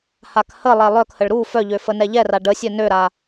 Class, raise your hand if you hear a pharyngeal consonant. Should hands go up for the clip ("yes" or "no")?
no